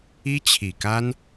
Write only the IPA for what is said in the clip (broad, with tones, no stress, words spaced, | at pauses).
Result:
i˥t͡ɕʰi˨˩ka˥n